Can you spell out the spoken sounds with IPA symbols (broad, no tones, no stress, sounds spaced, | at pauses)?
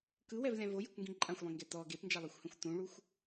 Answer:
k ɯ w ɛ v lʲ ã v o j e kʷ ŋ ɡ ĩ ǃʼ ã xʷ lˠ ĩ ŋ ɡ ɛ t ɔ ɡ e p n d͡ʒ a lˠ e xʷ h ɛ̃ xʷ t ũ ɭ u xʷ